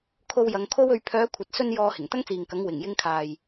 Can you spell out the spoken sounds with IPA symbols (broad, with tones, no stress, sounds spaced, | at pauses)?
kʰ o˧ w j ɐ˨˧ ŋ kʰ o˥ w ɵ˧ ɥ pʰ œː˨˧ kʷʰ ɐ˨ t̚ s ɵ˧ n j ɔː˧ h ɪ˨˩ ŋ t̪ ɐ˥ ŋ t͡s iː˨ ŋ k ɐ˨˥ ŋ w ɪ˨˩ ŋ j ɪ˧ ŋ kʰ aː˨ j